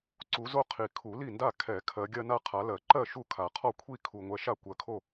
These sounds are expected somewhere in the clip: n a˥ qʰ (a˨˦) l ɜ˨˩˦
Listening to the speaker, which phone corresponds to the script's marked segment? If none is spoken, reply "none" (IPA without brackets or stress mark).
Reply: a˨˦